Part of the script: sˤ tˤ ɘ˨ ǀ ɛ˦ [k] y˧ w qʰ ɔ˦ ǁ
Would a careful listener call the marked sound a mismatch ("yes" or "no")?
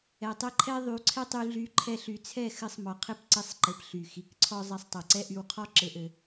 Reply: yes